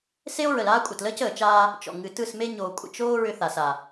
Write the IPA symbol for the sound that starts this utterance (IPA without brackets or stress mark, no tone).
s